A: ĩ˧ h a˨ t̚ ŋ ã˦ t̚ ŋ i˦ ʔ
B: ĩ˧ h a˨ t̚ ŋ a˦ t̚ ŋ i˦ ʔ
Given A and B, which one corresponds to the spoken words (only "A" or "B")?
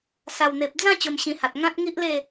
A